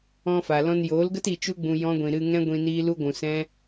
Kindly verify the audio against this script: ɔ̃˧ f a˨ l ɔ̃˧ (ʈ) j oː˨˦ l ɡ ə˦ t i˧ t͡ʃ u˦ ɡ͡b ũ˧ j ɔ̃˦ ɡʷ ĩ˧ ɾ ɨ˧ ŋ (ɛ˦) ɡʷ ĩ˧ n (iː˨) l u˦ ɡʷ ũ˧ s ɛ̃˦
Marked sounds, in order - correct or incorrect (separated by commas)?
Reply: incorrect, incorrect, incorrect